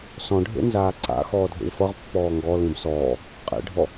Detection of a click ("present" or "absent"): present